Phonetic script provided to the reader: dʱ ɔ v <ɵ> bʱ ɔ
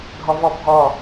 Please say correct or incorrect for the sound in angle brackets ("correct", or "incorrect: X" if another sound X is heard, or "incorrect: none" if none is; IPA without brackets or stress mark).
incorrect: ɔ